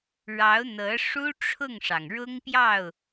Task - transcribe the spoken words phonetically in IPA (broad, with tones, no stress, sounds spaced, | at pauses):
ɻ ɑ˧˥ ʊ̯ n̪ ɤ˧˥ ʂ u˥ ʈ͡ʂʰ ʊ˥˩ ŋ ʂ ɑ˩ ŋ ɻ ʊ˥ ŋ p j ɑ˥˩ ʊ̯